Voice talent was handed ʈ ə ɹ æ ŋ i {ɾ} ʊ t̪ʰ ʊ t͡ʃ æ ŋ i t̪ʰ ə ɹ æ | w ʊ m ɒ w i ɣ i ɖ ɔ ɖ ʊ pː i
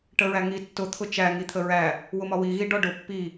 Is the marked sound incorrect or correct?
incorrect